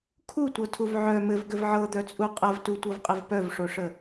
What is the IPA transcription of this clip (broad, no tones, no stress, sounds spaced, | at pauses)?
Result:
kʰ u tʷ ɤ tʰ u v ʕ œ m ɘ v ɡ ɘ v ʕ ɤ d̪ œ t͡sʼ u qʼ ɐ v t u tʷ ɤ v qʼ ɘ v p œ v ʂ o ʂ ə